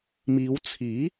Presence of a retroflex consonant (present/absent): absent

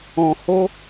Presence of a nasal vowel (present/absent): present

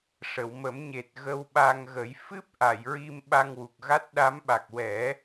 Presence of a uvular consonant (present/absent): absent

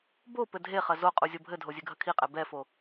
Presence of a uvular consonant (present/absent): present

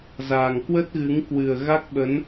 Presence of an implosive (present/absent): present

